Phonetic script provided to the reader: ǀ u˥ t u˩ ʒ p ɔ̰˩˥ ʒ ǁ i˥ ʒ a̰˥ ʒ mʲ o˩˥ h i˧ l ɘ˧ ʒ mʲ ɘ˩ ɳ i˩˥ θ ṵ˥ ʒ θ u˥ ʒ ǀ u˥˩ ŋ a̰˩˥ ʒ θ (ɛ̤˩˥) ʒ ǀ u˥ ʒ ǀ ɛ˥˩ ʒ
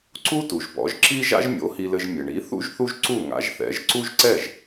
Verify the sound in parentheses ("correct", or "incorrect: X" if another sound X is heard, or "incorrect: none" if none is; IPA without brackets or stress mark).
incorrect: ɛ̰˩˥